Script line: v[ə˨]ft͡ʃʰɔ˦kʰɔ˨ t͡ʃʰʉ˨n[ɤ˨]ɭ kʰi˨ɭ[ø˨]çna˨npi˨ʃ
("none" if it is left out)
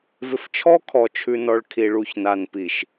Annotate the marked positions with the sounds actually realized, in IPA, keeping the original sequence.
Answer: ɪ˨, ɔ˨, u˨

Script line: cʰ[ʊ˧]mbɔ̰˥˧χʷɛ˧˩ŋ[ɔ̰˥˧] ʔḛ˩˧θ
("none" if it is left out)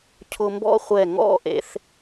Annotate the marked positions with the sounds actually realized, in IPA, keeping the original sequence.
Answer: ʊ˧, ɔ̰˥˧

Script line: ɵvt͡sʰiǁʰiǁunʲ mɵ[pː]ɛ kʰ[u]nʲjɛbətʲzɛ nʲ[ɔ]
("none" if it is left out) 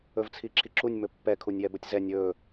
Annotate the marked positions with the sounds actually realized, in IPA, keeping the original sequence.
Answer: pː, u, ɵ

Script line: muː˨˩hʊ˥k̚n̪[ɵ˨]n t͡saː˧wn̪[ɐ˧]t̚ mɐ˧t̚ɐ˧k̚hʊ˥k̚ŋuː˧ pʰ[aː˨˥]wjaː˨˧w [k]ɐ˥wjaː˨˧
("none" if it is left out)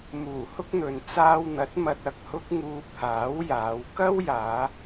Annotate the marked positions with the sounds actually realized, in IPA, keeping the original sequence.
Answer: ɵ˨, ɐ˨˥, aː˨˥, k

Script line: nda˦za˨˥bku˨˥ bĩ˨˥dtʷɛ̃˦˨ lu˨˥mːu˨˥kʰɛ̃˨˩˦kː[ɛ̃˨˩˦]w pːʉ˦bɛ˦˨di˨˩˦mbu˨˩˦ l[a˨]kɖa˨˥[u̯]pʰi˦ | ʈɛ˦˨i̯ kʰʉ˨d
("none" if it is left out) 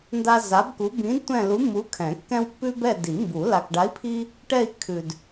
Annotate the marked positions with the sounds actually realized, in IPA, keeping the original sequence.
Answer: ɛ̃˦, a˨, i̯

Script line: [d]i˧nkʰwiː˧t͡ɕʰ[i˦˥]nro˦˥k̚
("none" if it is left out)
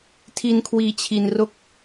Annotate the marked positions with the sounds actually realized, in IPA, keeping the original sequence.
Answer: tʰ, i˧

